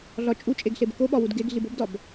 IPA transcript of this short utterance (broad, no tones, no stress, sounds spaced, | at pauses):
ɮ ɒ t͡ʃʼ u t͡ʃʼ e ɡ ɬ e b k o ɓ ɒ w u d ɡ e ɡ ɮ i b o b d ɒ b